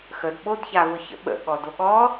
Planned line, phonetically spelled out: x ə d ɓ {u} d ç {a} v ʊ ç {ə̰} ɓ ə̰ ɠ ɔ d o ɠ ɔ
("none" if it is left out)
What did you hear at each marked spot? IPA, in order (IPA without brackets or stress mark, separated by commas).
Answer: o, a, ə̰